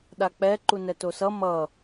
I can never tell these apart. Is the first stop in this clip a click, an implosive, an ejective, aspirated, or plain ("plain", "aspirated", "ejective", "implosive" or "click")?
implosive